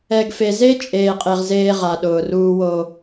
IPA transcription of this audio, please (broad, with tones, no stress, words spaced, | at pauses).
ɛ˨ɡfe˨ze˦ t͡ʃʼeː˨qʼe˨ʁ zeː˦ʁa˨ ɗʊː˨ruː˦wo˦